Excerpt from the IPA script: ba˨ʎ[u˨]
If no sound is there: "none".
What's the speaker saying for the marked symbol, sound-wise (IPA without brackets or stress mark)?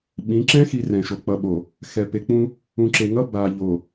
o˨